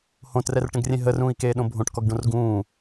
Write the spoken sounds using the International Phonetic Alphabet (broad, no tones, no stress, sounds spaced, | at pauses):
h õ t r ɛ r ʈ ə̃ ɡ rʲ ẽ ɦ ə r ũː i̯ k eː ɗ õ bʱ õ ʈ k ɔ ɡ ɖ õ r ɡ ũː